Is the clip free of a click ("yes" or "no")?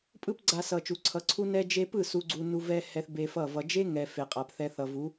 no